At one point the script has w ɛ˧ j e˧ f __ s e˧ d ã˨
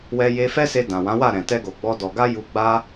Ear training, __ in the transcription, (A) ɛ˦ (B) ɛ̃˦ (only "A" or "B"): A